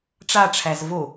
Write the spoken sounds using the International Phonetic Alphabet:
ʈ͡ʂ a ʈ͡ʂʰ æ z v o

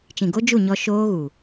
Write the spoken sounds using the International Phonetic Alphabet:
t͡ʃ ĩ˨ ɡ o˦ d͡ʒ u˦˨ ɲ ɔ˧ ʃ oː˦ ɣ u˨

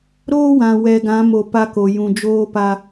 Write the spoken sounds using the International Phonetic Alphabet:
ɾ oː˦ w ã˨ w ɛ˨ ɡ ã˨˦ m o˨ p a˦ k o˨ j ũ˨ d͡ʒ oː˦ p a˦

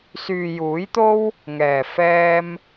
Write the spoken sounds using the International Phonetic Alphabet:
s yː˨ j uː˨˥ j t̪ o˥ w | ŋ ɛː˨˩ f ɛː˧ m

